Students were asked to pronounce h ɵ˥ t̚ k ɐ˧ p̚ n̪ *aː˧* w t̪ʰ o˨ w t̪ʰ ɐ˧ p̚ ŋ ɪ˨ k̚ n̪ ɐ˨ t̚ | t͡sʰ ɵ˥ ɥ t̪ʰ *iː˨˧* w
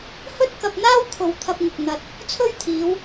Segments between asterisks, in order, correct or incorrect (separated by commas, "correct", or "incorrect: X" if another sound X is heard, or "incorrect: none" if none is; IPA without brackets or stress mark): incorrect: aː˥, correct